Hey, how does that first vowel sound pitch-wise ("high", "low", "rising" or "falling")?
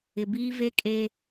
low